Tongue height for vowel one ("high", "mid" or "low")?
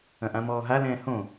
low